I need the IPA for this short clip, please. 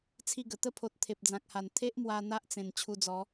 t͡sʰ i˥˧ ɡ ə˨˩ t̪ ə˥˧ pʰ o˨ t̚ t̪ʰ e˨ p̚ d͡z ã˨ k̚ h a˨˩ n t̪ʰ e˦ ʔ m w a˧ n̪ a˦ ʔ t͡s ẽ˨˩ n t͡ɕʰ u˧ d͡z ɔ˨˦

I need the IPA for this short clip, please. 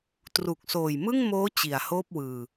t r u˨˩ k̚ s oː˨˩ j m ɯ˥˩ ŋ m oː˦˥ t͡ɕ i˨˩ a̯ h oː˥˩ p̚ w ɯː˨˩

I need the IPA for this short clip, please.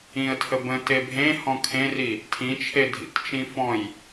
ĩ ə̯ tʰ ə b ə̃ t e bʱ ẽ h ɔ̃ kʰ ẽ r i | tʰ ĩ t͡ʃʰ e dʱ ḭ t t͡ʃ ĩ f ɔ̃ j

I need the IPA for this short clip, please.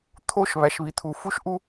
t̪ʰ o˦˨ ʃ β æ˨ ʃ β i˨ t̪ʰ u˨ f u˦ ʃ ʔ u˦

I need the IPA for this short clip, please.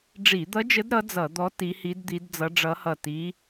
ɖ͡ʐ i˧˩˧ d̪ ʌ˧˥ d͡ʒ ə˧˥ d ɾ ʌ˧˥ d͡z ʌ˧˩˧ d̪ ɔ˧˥ t i˧˥ h i˧˥ d d̪ i˧˥ d d͡z ʌ˧˥ ɖ͡ʐ ʌ˧˥ h ʌ˦˨ t i˧˥

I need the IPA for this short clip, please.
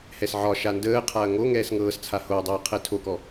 h ɛ s ʕ ɒ ʃ a n d əː qʰ a ɐ̯ ŋ o ŋ ɛː s ŋ ɤː s t͡sʰ a h o ɐ̯ dˤ əː qʰ ɛ tʰ o k ɔ

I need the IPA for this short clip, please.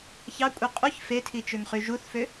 ç ɑ kʷʼ i qʼ u ç f e tʰ i t͡ʃ ø ŋ χ y ʒ u θ f ø

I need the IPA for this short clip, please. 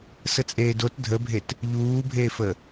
s ə t͡sʼ eː d o t dʱ ə bʱ e t | ʎ uː bʱ eː f ə

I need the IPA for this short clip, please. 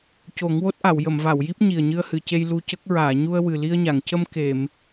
c o˨˩˦ ŋ w o˦˥ t̚ ʔ a˨˩˨ w j ə˨˩˨ m v a˨˩˨ w j i˦˥ p̚ ɲ i˨˩ ə̯ ɲ ɨ˧ ə̯ h ɨ˨˩˨ c e˧ j l u˧ c ə˦˥ k̚ ɹ aː˨˩˨ ɲ u˧ ə̯ w ɨ˨˩ l i˧ ə̯ ɲ a˨˩˨ ŋ c ə˧ m k e˨˩˨ m

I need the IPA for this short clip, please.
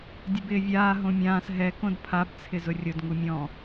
dʲ ʊ b ɪː vʲ aː ɦ õ mʲ ãː s ɦ ɛ k õ d pʰ a b t͡sʰ ɪ z ʊ rʲ ʊ d ŋ u mʲ ɔ̃

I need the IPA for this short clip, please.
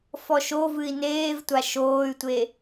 f ɔ ʃ o v ɨ i̯ n eː v tʷ a ʃ oː y̯ tʷ e

